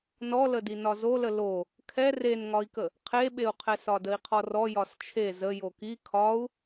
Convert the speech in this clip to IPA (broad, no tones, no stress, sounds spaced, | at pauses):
n ɔ l ə d i n ɒ z o l ə l o | kʰ ɛ r e n ŋ ɒ i̯ k ə | qʰ e ɓ e u̯ qʰ ɛ s ɒ d ə i̯ qʰ ɔ r ɔ j ɒ s t͡ʃʰ e z ə j o k i kʰ ɒ u̯